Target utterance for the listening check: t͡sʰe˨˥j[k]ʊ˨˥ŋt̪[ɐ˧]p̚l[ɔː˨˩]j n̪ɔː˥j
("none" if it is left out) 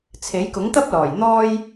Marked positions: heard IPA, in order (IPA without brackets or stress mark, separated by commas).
k, ɐ˥, ɔː˨˩